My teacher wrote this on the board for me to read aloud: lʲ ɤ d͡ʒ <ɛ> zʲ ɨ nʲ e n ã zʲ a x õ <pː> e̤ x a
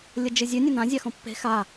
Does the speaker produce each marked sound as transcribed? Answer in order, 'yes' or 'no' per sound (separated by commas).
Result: no, yes